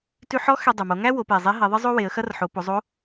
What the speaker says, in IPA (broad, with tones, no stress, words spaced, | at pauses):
tʉ˧ħɔ˧˥ xɛ˧dˤu˩mo˩˧ ŋæ˥wo˩˧pe˩zˤe˧˥ ɦɛ˩˧ðˤɨ˥zˤo˥ we˩˧ə̯xɐ˥r ħo˩˧po˩˧ zˤo˧˥